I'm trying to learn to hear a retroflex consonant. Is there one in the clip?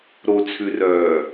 no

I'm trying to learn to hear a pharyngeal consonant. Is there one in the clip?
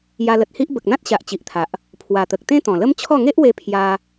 no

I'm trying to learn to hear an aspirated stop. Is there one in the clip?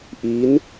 no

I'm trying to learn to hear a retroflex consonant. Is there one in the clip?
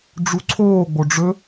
yes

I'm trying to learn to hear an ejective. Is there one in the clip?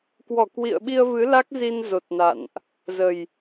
no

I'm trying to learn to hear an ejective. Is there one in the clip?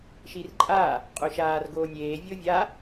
yes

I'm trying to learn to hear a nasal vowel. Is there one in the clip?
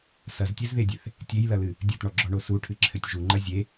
no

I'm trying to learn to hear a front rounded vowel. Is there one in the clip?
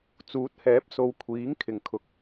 no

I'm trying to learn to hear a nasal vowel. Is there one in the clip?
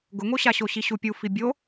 no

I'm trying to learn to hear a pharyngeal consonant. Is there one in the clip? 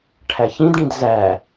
no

